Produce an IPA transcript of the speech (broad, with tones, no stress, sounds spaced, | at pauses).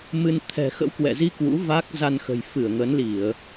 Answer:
m ɨ˧ n t̪ʰ ɛ̤˨˩ x ə̰˧˥ w k w ɛ̰˧˨ z i˧ k w ṵ˧˥ v a˦˥ k̚ z a˧ n x ə̤˨˩ j f ɨ˧˩ ə̯ ŋ ə˨˦ n l i˧˩˨ ə̯